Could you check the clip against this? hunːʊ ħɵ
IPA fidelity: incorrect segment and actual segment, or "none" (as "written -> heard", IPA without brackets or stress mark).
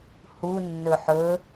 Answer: ʊ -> ɵ